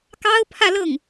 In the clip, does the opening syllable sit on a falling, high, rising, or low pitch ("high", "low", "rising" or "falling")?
high